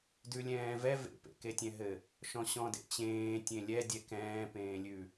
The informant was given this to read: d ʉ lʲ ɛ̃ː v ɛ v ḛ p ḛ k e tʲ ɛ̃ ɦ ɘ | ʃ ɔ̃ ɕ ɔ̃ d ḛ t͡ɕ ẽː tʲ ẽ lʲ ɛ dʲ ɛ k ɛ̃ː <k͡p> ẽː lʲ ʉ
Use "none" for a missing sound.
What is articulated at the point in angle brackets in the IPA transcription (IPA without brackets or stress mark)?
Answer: p